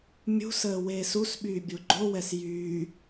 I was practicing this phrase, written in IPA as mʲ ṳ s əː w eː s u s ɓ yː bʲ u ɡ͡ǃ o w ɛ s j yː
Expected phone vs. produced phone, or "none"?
none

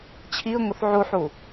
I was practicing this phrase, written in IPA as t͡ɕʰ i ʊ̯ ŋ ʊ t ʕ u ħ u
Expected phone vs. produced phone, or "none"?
t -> θ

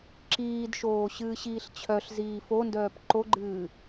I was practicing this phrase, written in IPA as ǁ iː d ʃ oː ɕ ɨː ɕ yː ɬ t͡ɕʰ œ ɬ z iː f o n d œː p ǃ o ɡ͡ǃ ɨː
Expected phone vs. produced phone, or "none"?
yː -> iː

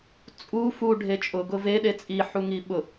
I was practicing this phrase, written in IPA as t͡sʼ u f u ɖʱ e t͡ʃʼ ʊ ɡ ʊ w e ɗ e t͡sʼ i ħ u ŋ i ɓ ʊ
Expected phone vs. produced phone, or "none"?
w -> v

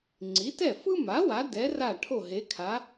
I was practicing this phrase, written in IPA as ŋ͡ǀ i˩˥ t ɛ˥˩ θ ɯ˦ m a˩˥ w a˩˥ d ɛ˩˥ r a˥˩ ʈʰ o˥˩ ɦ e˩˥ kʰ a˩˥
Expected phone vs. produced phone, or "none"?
θ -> f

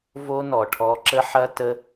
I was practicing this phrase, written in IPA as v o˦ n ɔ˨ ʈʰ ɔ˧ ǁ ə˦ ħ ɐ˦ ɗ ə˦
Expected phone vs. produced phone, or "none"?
ɗ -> t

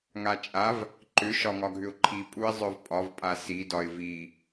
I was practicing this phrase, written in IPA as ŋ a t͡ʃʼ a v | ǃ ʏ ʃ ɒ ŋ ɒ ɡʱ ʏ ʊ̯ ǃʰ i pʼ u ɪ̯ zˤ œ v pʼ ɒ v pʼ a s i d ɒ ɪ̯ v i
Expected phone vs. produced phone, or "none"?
none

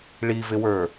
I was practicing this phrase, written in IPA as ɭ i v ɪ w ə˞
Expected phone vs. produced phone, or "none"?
none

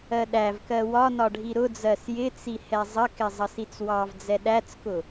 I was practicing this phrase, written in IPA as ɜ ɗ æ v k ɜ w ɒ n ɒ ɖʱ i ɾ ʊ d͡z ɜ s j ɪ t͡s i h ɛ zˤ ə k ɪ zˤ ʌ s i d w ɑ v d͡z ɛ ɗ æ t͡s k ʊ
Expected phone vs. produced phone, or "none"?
d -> t͡s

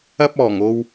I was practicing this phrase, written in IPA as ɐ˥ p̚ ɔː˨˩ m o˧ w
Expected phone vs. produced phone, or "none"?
m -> ŋ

